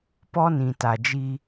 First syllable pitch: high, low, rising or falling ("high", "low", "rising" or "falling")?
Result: high